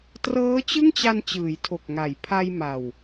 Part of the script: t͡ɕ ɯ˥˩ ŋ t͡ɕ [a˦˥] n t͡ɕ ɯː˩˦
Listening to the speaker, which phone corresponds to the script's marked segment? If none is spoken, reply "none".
a˧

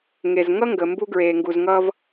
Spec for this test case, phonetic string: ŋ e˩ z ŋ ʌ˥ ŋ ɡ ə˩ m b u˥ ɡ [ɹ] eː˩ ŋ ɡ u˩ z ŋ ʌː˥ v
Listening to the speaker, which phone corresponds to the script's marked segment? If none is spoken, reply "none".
ɹ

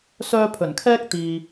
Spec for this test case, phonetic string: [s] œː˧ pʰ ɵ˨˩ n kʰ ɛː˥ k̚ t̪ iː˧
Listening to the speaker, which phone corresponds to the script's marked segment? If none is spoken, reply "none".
s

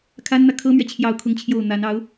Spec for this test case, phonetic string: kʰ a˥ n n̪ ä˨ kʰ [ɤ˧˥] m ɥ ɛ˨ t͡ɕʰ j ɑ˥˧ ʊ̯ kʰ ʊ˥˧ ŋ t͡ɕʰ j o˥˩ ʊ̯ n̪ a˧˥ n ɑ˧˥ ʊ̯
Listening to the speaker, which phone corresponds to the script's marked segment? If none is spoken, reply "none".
ɤ˥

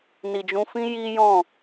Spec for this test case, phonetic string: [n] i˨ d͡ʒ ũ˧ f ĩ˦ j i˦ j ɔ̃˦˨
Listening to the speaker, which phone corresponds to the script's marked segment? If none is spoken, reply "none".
n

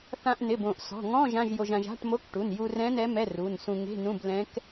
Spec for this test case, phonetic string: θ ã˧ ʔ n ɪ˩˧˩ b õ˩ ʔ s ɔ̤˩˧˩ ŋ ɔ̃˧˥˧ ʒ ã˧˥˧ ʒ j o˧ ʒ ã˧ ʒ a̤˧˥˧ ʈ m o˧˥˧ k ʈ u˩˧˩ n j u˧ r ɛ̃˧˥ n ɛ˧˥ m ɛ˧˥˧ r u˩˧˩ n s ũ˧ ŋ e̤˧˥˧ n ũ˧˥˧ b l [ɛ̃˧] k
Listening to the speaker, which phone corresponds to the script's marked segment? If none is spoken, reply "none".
ɛ̃˧˥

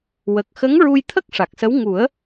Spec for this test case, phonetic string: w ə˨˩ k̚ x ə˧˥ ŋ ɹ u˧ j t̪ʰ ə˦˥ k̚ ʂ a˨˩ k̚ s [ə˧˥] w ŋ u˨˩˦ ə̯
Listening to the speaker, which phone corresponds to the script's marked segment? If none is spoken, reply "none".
ə˧˥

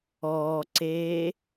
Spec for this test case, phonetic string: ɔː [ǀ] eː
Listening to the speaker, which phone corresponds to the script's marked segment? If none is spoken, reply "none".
ǀ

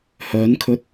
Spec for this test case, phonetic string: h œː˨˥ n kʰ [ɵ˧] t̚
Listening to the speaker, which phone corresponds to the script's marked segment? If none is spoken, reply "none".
ɵ˧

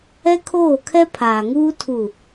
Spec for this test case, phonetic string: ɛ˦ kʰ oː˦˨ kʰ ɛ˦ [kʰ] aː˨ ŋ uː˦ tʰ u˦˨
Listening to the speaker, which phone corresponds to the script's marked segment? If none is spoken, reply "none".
pʰ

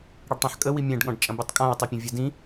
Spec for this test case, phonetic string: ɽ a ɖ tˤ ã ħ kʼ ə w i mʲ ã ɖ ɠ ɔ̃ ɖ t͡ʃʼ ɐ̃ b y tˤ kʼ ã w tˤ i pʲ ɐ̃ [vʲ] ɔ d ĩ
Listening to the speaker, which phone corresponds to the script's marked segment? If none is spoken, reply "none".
vʲ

